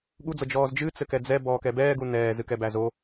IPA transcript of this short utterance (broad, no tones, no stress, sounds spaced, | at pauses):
ɠ u d͡z ɤ d͡ʒ ɔː z d͡ʒ ɨ t͡s ɘ k ɛ d͡z ɛ b ɔː k ɛ b ɛː ɡ u n ɛː z ɨ k ɛ b æ z o